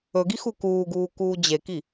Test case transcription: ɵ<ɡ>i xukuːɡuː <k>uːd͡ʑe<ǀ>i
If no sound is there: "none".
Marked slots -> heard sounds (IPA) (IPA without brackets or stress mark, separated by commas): ɡ, k, k